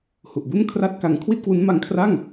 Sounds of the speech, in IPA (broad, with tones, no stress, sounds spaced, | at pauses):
h u˨˩ ʔ b u˥˩ n kʰ r a˥˩ t̚ k a˧ ŋ kʰ w i˥˩ t̚ k w u˦˥ n m a˧ ŋ kʰ r a˥˩ ŋ